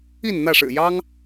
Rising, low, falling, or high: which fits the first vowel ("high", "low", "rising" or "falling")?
falling